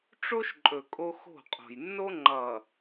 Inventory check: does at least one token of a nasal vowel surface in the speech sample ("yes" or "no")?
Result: no